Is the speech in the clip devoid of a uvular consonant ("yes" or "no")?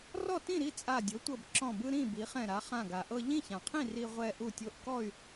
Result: no